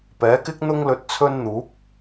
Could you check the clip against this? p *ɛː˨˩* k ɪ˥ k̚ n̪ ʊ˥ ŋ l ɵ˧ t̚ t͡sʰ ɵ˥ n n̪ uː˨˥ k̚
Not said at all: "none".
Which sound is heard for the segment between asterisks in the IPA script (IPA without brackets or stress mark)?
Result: ɛː˨˥